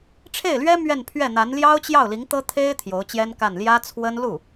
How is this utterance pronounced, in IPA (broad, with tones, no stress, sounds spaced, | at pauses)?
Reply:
ʈ͡ʂʰ e˥˩ ɪ̯ l ɥ ɛ˥ m ɥ ɛ˥˧ n pʰ ɥ ɛ˥˩ n̪ a˧˥ n l j ɑ˥ ʊ̯ t͡ɕ j ɑ˥˩ ʊ̯ l i˧˥ ŋ t̪ ɤ˥ t̪ʰ e˥ ɪ̯ t̪ʰ j o˧˥ ʊ̯ t͡ɕ j ɛ˥ n k a˥˩ n l j ä˥ t͡sʰ w ə˥ n l u˥˩